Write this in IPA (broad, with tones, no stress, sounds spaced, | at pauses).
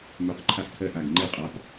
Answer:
m ø˩˧ q ǃʰ a˨˩ ʔ kʰ ɜ˨˩ ʔ a˨˩ ɡ ŋ͡ǃ e˨˩ qʼ a˩˧ p